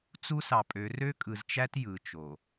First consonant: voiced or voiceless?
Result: voiceless